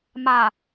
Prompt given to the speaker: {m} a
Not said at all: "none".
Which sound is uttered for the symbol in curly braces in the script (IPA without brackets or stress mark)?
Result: m